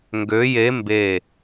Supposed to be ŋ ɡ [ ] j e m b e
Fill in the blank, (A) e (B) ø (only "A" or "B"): B